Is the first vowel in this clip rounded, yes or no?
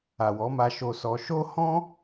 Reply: no